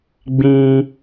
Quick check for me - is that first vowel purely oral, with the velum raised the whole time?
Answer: no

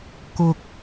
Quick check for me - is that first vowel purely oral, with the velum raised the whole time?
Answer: yes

